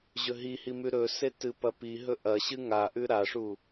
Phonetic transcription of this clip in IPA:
ʑ ɵ ɦ i h i m ʉ ɾ ɵ s e t ɨ p ɐ p i ɦ ɵ ʔ ɐ ɕ ɨ ŋ a ʔ ʉ ɾ a ʂ u

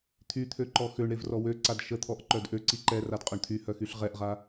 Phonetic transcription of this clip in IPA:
t̪ʰ y t̪ʰ ø ǃ ɔ x ø ɳ ɾ e v r ɔ w ø ǀ a d ʃ ə t̪ʰ ɔ ʔ ǃ œ d ʔ ø ǀ i ǃ ɛ r a d qʼ œ ɳ t̪ʰ y h œ x y ɬ ʁ ɛ ʔ ʁ a

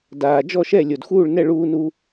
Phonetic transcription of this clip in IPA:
d aː˩ d͡ʒ ɔ˥˨ ʃ ɛ˥˨ lʲ o˩ d x uː˥˨ ɭ n ɛ˥˨ ɭ uː˧ n u˧

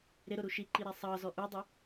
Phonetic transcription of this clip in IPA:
ɾ ɪ ɾ ʊ ɾ u ʃ i ǃ i ɾ æ sˤ ɑ z ɔ ʔ u dˤ ə

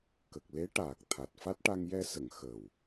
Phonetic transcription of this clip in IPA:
k ə˨˩ k̚ l e˧˥ ʈ aː˨˩ k̚ t̪ʰ a˨˩ t̚ f a˦˥ t̚ ʈ a˧ ŋ j ɛ˧ s ə˨˩˨ ŋ x ə˨˩ w

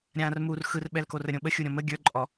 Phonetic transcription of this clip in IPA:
ɾʲ ãː r m u r x ɯ r ɓ ɛ l k o r ə ɾʲ õ ɓ ə xʲ u ɾʲ ɔ̃ m ə ɡʲ ə˞ ǃʼ ɔ

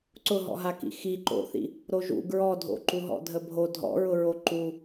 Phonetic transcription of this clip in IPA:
ǀ ʊ ɦ ɔ̰ ɦ a k ḭ x i ǃ o̰ θ ḭ | ɾ o ʒ ṵ ɡ ɹ ɔ dʱ o̰ ǃ u ɦ ɔ̰ dʱ ə bʱ o dʱ ɔ̰ ɹ ʊ ɹ o ǃ u

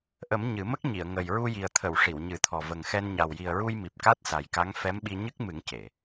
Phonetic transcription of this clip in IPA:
ʔ ə˨˩˦ m ɲ ɨ˨˩˦ m ə˦˥ k̚ ɲ i˨˩˨ ə̯ ŋ ə˨˩ j ɹ u˧ j i˨˩ ə̯ t̪ʰ ə˨˩˨ w ʂ i˨˩˨ w ɲ ɨ˨˩˦ t̪ʰ ɔ˨˩ v ə˨˩ ŋ x ɛ˧ n ɲ a˨˩ w j i˨˩ ə̯ ɹ u˧ j m i˨˩ p̚ k a˦˥ t̚ s a˨˩ j k a˧˥ ŋ f ɛ˧˥ m ɓ i˧ ɲ ɨ˦˥ k̚ m ɨ˨˩˦ ŋ c e˨˩˨

